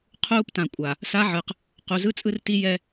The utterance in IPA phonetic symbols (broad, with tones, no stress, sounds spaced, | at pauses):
qʰ uː˦ p t ã˨ kʷʼ a˨ | s a˦ ʕ ɯ˨ q | q u˨ z ɯ˦ t͡sʼ ɯ˦ r t i˦ j ɛ˦